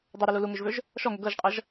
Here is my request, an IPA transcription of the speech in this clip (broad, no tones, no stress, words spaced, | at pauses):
dˤɤɾʌlu luŋøʒvøʒ | ʃɔŋø ɡɤʒqʼʌʒ